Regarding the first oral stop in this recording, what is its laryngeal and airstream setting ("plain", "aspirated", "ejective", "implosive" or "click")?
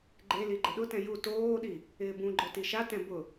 click